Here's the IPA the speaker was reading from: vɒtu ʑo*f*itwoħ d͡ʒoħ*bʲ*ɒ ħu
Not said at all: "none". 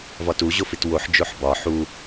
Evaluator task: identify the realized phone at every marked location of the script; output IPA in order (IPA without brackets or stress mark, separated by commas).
f, b